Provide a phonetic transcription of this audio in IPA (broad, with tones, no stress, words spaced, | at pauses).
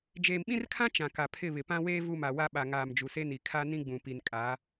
d͡ʒeː˨mɓĩ˦rkʰã˦ t͡ʃã˨ka˨ pʰɪ˦˨βɪ˨pã˦weː˦ vu˦˨ma˨ wa˦ɓa˨ ŋaː˨m d͡ʒu˨se˦ni˨ kʰa˦ nĩ˦ɡ͡bũ˨pi˨n kʼa˨˦